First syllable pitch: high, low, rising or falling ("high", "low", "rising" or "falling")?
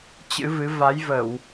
rising